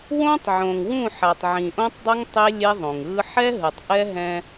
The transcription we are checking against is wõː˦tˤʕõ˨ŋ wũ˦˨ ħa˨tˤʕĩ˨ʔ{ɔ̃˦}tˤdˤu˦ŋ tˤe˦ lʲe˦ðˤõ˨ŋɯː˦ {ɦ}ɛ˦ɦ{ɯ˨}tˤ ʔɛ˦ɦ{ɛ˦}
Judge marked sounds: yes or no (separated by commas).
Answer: no, no, yes, no